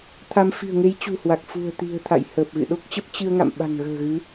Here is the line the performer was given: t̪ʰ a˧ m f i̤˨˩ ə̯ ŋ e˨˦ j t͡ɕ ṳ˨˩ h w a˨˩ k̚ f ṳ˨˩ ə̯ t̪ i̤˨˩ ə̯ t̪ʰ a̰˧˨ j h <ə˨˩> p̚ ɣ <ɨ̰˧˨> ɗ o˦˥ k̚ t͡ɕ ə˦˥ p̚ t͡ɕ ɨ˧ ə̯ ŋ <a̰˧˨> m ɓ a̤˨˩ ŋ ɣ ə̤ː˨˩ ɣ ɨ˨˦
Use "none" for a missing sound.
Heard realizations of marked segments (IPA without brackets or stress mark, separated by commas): əː˨˩, ɨ̰˧˨, a̰˧˨